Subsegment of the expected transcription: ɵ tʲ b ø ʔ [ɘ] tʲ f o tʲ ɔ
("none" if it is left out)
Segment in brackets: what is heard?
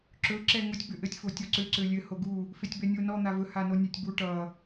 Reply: ɘ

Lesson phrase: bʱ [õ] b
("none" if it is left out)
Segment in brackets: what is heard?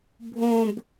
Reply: õ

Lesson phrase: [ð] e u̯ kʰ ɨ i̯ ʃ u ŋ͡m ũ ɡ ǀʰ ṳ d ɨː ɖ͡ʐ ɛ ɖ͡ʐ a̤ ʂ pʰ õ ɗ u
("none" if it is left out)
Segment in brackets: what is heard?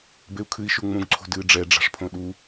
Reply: b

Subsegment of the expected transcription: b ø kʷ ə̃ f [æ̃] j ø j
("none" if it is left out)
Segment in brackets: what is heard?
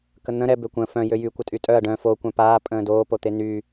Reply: œ̃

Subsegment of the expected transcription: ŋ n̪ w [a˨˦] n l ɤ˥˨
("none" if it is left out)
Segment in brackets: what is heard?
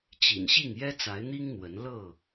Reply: ə˨˦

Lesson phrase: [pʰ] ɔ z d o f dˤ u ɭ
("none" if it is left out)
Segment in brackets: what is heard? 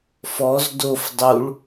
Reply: f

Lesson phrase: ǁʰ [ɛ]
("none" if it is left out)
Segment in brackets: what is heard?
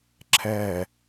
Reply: ɛ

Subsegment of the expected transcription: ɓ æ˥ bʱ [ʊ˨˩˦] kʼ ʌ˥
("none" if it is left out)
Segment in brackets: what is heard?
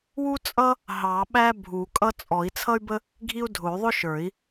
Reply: u˨˩˦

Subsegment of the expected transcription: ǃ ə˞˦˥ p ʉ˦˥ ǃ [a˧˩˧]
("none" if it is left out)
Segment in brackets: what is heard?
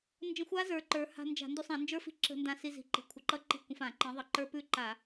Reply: a˧˩˧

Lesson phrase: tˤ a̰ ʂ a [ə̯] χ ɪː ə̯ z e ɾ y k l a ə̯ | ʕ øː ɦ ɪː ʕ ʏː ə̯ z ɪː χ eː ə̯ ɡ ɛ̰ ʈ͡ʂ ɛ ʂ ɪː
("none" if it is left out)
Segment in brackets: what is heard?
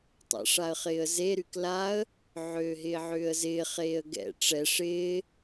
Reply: ə̯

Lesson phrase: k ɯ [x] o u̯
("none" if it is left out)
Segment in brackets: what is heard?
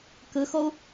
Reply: x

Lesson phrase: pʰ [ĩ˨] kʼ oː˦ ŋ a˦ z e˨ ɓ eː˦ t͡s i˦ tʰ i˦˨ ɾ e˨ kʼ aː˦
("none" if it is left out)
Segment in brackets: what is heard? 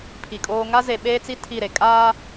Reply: i˨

